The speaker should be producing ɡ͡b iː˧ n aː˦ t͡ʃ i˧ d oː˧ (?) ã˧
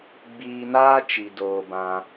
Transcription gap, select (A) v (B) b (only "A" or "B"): B